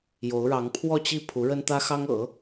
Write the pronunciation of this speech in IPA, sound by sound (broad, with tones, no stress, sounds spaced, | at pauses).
j o˧˥ ʊ̯ ɻ ɑ˧˥ ŋ pʰ w ɔ˥˧ t͡ɕ i˥˩ pʰ u˧˥ ɻ ə˥ n t̪ ä˥ x ɑ˥ ŋ ɤ̰˨˩˦